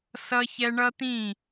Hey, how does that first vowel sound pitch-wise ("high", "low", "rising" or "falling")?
high